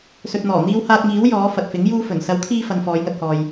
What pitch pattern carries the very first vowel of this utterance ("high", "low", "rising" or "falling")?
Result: low